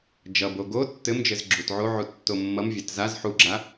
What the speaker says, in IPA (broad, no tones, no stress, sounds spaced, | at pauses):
d͡ʒ ʌ b o ɡ o tː ɘ m d͡ʒ ɘ z ɡ͡ǁ u t ʕ o ʕ u tː o mː ʌ m vʲ a t z a z ħ u ɡ͡ǁ a